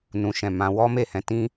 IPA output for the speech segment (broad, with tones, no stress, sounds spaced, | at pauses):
n ũ˨ ʃ ɛ̃˨ m ã˧ w ɔ˦ m e˦˨ h ɛ̃˧ t ĩ˦